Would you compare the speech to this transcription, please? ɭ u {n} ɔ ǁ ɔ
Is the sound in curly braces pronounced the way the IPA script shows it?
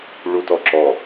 no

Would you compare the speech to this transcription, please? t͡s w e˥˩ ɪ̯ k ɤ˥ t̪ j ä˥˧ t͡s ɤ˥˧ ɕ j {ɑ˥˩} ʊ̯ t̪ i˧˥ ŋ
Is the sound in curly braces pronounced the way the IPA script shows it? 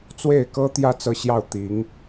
yes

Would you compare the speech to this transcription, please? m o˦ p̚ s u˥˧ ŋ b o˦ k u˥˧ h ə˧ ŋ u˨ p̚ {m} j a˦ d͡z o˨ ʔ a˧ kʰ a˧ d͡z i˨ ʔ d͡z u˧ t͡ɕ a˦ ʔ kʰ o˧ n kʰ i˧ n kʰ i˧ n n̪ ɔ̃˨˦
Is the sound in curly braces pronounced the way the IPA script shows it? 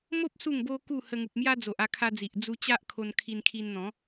yes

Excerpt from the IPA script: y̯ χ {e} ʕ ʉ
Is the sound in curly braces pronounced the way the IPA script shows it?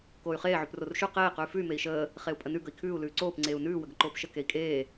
no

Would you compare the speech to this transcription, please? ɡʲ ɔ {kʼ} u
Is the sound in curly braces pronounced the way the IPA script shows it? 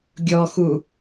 no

